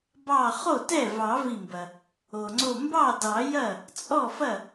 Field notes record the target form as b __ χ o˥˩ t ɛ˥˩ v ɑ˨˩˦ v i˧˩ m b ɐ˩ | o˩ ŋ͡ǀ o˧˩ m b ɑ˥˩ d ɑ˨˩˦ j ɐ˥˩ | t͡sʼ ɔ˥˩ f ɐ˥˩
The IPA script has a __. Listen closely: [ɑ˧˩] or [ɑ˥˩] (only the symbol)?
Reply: ɑ˧˩